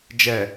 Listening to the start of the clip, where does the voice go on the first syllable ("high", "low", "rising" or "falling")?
low